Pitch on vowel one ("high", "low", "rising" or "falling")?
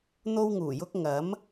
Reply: high